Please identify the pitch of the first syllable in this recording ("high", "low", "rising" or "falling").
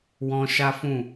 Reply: high